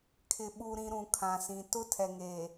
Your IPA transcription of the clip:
kʰɪ˨ɓu˨ɾĩ˨ ɾũ˨kʰã˨sĩ˨ tʊ˦tʰɛ˨ŋe˨

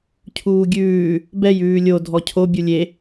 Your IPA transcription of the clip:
cʰuːɡʲʉː | bɛj ʉːlʲo dʱɔcʰo bʲulʲe

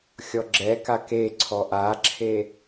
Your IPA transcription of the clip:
xʲɔɡ͡ǁɛka keǀʰɔ ʔaǁʰe

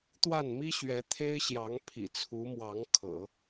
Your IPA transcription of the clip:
t̪wa˥˩nmi˥ɕɥɛ˧˥ t̪ʰe˥ɪ̯ɕjɑ˧˥ŋ pʰḭ˨˩t͡sʰu˧˥mwɑ˧˥ŋ kʰɤ̰˨˩˦

